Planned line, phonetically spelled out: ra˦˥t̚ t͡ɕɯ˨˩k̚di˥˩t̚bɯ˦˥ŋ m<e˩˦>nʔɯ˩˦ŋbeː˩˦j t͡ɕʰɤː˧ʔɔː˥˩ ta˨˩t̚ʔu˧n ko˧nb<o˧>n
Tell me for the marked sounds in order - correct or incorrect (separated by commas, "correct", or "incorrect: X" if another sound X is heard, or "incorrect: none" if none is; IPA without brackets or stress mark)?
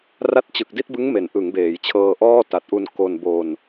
correct, correct